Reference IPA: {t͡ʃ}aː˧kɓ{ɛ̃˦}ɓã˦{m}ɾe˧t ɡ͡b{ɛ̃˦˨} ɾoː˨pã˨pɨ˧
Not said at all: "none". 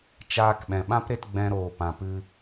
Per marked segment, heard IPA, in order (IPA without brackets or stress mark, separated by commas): t͡ʃ, ɛ̃˨, p, ɛ̃˧